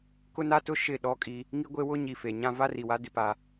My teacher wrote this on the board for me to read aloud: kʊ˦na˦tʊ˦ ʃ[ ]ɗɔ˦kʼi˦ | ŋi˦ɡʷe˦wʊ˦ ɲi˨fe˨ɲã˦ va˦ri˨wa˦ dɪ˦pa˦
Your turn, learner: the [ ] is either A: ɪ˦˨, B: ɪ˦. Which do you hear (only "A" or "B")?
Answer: A